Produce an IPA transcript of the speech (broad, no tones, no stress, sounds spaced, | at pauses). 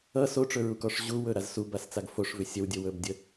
ʌ s o ʈ͡ʂ ɵ ɹ u k ɔ ʂ ʑ u w ɵ ɾ a z s u b a s t͡s a ɡ f o ʂ v ʏ sʲ ə w dʲ ə w ɵ b dʲ ə